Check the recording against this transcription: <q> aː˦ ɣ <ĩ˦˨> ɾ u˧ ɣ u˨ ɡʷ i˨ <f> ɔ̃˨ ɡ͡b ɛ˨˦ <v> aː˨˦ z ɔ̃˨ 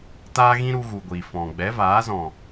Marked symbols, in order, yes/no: no, no, yes, yes

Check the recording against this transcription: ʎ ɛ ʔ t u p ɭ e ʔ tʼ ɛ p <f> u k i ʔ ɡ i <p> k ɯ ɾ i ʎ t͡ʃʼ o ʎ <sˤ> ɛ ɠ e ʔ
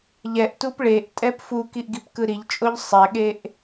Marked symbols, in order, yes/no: yes, yes, yes

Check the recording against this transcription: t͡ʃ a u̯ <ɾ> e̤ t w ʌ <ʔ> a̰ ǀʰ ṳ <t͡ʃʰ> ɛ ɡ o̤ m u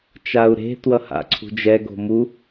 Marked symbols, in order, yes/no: yes, no, no

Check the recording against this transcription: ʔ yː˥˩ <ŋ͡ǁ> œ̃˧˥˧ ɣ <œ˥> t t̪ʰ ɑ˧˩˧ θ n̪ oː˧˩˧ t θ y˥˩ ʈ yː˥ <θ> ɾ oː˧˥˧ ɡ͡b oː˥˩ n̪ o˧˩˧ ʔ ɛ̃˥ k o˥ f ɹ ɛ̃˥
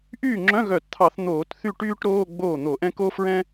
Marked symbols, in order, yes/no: yes, no, no

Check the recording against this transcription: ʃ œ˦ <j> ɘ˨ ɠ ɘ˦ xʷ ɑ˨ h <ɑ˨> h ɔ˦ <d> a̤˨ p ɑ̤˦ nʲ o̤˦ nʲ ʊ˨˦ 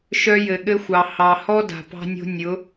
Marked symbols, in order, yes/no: yes, yes, yes

